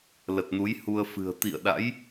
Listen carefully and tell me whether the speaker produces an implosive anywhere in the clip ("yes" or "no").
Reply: yes